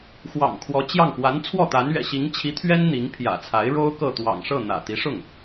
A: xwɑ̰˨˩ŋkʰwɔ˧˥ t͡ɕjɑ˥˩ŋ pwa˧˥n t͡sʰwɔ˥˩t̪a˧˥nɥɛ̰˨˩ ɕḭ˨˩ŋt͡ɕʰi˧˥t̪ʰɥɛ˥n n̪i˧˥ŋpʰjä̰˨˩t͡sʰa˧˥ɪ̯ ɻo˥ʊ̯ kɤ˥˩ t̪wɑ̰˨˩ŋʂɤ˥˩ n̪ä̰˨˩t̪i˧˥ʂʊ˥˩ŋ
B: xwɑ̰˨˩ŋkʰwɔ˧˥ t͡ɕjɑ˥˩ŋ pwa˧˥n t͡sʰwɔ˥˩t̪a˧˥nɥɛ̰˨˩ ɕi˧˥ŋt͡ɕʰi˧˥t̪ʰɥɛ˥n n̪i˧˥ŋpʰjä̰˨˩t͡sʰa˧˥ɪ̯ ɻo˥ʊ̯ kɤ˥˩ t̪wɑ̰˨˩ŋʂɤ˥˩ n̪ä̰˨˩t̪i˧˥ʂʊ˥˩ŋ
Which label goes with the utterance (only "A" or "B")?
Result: B